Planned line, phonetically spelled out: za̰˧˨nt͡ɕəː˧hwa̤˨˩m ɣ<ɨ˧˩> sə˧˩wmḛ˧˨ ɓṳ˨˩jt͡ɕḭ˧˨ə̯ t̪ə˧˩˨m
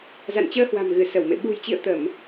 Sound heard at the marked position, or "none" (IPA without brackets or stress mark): ɨ˧˩